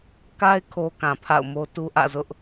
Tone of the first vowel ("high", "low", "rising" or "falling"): high